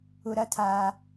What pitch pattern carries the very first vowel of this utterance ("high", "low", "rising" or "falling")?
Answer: low